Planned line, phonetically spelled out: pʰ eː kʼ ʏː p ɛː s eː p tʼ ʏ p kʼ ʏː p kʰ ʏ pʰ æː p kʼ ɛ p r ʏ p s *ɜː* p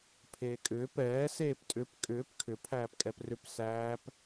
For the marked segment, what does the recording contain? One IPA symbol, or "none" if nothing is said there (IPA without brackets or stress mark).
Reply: æː